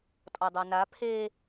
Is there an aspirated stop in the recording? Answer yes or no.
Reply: yes